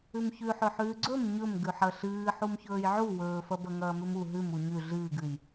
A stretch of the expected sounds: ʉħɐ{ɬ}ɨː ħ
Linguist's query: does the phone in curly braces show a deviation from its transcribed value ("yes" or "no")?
no